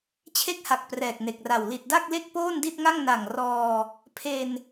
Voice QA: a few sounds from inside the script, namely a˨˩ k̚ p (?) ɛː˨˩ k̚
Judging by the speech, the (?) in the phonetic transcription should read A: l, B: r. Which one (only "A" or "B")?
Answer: B